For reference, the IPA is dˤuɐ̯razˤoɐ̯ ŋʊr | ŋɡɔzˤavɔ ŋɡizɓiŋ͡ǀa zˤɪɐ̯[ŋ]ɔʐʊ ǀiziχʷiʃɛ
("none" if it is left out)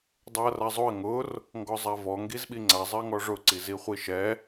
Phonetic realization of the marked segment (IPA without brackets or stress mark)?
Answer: ŋ